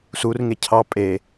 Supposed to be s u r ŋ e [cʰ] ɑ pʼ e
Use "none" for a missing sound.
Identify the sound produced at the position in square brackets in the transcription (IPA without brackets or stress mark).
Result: cʰ